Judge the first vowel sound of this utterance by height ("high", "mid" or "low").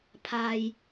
low